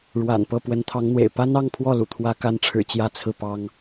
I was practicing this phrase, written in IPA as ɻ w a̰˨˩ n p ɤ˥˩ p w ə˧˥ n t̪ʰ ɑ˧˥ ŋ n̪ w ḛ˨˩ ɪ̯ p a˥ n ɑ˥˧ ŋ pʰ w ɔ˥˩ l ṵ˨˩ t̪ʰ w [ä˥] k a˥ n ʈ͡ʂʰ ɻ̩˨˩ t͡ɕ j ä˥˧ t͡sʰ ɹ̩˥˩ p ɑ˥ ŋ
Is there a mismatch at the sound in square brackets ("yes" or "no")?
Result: no